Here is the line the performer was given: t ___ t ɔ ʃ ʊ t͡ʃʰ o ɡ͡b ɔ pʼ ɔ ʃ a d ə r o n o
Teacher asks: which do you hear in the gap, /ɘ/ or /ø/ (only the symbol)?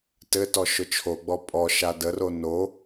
ɘ